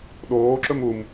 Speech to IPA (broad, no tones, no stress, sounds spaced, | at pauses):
ɗ oː ǁ ɵ m u m